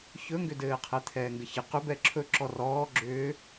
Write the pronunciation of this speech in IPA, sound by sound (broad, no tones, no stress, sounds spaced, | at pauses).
ç ɵ ŋ ɡ ʏ d ɘː qʰ ɛ t̪ʰ ɛː ŋ ɡ ɘ ç ɘ q ʏ b ɛ ǁʰ ɵ ǁ ɔ r ɔː ɡ͡ǁ ʏː